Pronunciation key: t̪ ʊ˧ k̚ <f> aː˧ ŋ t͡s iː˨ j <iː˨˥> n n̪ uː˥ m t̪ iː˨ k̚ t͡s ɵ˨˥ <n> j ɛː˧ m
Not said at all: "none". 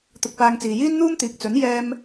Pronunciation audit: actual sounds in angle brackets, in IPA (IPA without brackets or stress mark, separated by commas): p, iː˥, n